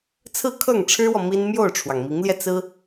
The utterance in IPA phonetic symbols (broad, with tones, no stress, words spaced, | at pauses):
t͡sʰɹ̩˥˧kʰɤ˥˩ŋʈ͡ʂʰɻ̩˥wɔ˨ mi˥n mjo˥˩ʊ̯ʈ͡ʂʰwɑ˩ŋmi˧˥ŋljɛ˧ t͡sɹ̩˥